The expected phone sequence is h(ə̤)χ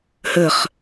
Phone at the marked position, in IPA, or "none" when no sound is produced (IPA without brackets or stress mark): ə